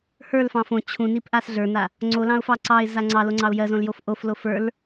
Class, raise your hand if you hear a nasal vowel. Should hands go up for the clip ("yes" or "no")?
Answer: yes